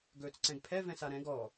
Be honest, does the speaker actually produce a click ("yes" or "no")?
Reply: yes